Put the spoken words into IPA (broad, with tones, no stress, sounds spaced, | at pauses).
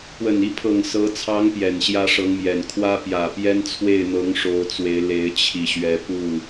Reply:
p w ə˨˩ n i˥˩ pʰ ɤ˨˩ ŋ s ɤ˧˥ t͡sʰ ɑ˧˥ ŋ p j ɛ˨˩ n ɕ j ä˥ ʂ ɤ˧˥ ŋ m j ɛ˨˩ n kʰ w ä˥ p j ä˨˩ p j ɛ˥ n t͡sʰ w e˥˩ ɪ̯ n̪ ɤ˧˥ ŋ ʂ o˧˥ ʊ̯ t͡s w e˧˥ ɪ̯ l e˧˥ ɪ̯ t͡ɕʰ i˨˩ ɕ ɥ ɛ˧˥ p u˥˩